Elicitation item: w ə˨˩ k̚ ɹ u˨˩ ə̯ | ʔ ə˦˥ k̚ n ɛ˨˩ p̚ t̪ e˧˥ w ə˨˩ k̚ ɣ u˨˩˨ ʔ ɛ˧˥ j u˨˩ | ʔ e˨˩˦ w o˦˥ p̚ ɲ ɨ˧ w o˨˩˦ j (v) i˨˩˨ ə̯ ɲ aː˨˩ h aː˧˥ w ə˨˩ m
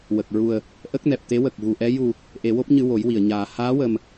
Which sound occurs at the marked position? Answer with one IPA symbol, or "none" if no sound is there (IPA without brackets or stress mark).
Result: w